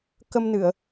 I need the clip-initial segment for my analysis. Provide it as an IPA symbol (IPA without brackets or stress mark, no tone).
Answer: k